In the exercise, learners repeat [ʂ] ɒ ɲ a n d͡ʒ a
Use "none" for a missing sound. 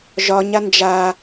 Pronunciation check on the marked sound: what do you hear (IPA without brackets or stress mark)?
ʒ